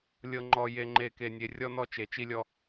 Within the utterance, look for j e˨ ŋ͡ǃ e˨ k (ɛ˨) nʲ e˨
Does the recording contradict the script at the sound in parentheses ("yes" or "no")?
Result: yes